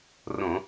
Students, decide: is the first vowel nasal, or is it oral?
nasal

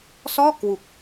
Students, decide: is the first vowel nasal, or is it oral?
oral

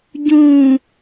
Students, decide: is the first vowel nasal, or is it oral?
nasal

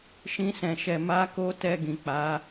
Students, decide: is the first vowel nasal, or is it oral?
nasal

